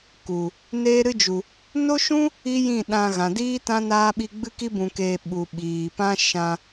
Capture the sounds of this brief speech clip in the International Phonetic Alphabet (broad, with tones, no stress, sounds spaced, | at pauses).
k u˨ | n eː˦ ɾ ɨ˦ d͡ʒ u˨ | n o˦ ʃ ũ˦ | i˦ j ĩ˦˨ ɗ ã˧ ɣ ã˨ d iː˦ t ã˦ n aː˦ ɓ i˦ ɡ͡b ɨ˦ k i˦ b ũ˧ k eː˧ ɓ u˧ ɓ iː˨ p ã˦ ʃ ã˧